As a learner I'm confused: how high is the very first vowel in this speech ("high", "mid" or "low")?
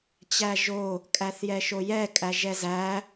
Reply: low